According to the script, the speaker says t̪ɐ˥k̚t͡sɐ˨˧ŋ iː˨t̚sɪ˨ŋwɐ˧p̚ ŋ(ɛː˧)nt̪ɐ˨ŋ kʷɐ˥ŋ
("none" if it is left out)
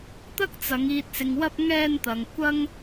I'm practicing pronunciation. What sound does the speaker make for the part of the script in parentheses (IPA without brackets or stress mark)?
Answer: ɛː˧